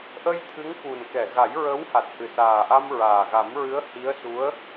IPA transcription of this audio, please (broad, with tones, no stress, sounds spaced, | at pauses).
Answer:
ʔ ə˧ j t̪ʰ ɨ˧˥ ŋ k u˨˩ n k ɛ˨˩˨ ɣ a˨˩˦ j ɹ ə˧˥ w h a˨˩ t̚ h ɨ˨˩ s aː˨˩ ʔ a˧ m ɹ aː˨˩ ɣ a˨˩˦ m ɹ ɨ˧˥ ə̯ h i˧˥ ə̯ s u˧˥ ə̯